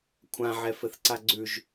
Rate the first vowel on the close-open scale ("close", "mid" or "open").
open